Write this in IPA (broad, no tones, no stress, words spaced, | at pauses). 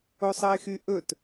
osˤɜɪ̯xyʔɵt